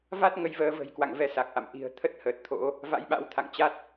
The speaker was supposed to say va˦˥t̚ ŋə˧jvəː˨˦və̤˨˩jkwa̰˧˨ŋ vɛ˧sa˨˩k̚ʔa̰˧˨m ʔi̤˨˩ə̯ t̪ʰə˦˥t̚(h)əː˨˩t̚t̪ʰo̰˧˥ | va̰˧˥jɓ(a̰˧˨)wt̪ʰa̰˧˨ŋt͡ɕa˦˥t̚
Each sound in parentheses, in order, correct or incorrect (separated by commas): correct, incorrect